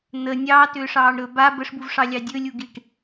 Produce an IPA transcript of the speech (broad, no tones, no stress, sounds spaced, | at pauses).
n̪ ə nʲ ɑː t ʏː ʂ ɑː ɳ ɾ ɵ b a b ə ʂ b u v ʂ ɑ lʲ ɑ dʲ ɵ lʲ u ɡ i ʈ